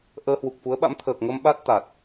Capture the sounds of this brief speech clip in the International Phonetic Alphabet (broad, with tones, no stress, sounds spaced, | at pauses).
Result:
ʔ əː˧ h w u˨˩ k̚ f u˨˦ ə̯ ɓ a̰˧˥ m t̪ʰ əː˨˩ k̚ ŋ ə˧ m ɓ a˦˥ t̚ t̪ a˨˩ t̚